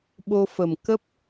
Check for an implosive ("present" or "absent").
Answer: present